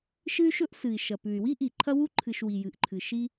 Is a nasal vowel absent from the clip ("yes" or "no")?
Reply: yes